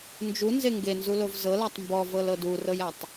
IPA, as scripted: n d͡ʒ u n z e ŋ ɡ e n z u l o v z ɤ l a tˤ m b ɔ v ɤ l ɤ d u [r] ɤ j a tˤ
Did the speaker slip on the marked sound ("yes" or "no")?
no